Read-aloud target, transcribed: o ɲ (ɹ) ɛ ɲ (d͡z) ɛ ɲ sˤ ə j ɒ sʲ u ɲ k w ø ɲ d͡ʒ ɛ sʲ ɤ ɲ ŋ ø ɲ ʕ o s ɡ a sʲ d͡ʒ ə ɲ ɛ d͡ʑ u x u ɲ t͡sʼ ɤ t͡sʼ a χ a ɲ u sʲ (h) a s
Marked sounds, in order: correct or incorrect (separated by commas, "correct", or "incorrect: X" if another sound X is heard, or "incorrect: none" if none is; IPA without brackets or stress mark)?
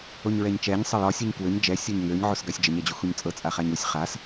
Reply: correct, incorrect: t͡ʃ, incorrect: χ